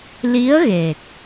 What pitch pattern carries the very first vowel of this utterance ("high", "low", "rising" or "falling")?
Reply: rising